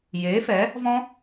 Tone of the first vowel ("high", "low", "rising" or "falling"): rising